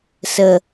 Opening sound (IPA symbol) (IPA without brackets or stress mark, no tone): s